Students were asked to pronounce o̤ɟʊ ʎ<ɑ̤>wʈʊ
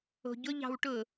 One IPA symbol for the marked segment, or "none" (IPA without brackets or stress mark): ɑ̤